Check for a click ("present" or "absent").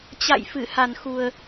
absent